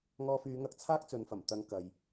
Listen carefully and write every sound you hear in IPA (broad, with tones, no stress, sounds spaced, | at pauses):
ŋ ɔː˧ f yː˨˧ ŋ ɐ˧ k̚ t͡sʰ aː˥ k̚ t͡s ɵ˨˧ n f ɐ˨˩ m t̪ ɐ˨˧ ŋ k ɐ˨ j